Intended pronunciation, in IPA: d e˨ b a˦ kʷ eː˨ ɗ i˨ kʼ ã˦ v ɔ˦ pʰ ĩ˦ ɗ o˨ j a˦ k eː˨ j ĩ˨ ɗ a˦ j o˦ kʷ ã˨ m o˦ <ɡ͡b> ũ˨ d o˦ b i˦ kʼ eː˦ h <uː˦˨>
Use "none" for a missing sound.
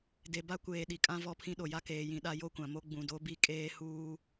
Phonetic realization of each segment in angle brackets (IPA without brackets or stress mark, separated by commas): ɡ͡b, uː˦